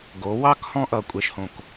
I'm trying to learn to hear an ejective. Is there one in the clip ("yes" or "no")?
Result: yes